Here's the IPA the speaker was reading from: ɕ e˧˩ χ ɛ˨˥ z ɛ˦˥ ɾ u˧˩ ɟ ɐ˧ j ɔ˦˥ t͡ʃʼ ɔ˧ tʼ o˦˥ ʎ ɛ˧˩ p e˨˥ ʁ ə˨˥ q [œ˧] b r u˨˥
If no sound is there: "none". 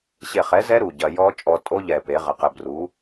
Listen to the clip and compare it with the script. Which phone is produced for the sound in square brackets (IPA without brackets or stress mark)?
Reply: ə˧